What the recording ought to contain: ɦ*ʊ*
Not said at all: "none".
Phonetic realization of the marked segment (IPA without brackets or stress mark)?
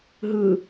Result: ɯ